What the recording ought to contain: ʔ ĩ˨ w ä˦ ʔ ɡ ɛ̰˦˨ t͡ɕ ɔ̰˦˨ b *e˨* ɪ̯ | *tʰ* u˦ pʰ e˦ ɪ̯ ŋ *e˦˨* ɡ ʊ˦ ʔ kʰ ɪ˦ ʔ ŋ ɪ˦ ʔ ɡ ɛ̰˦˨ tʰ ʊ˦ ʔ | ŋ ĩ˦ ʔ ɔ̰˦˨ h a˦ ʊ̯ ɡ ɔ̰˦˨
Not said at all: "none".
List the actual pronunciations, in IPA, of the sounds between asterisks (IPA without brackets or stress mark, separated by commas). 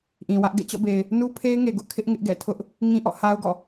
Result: e˨, n, e˨